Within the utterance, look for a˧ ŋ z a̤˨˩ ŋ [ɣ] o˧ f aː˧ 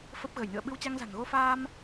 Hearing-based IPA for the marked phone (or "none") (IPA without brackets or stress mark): ɣ